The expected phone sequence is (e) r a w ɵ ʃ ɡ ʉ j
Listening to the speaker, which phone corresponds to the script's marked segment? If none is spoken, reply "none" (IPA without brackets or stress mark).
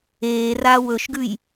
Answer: eː